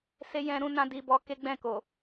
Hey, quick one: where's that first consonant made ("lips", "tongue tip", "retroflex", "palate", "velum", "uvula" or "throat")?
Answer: tongue tip